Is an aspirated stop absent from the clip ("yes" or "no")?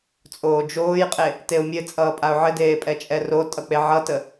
yes